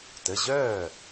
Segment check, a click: absent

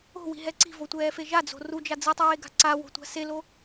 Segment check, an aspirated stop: absent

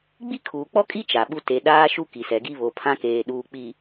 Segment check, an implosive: present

